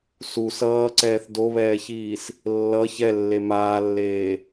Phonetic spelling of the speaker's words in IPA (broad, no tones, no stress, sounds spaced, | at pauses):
s u s ʌː ǀ ɛː θ d o β ɛː ç iː s | lː ʌ ç ɛ lː e m aː lː eː